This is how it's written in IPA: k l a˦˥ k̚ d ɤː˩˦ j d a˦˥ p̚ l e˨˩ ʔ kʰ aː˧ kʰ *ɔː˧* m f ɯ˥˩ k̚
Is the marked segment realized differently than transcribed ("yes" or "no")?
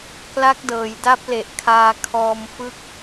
no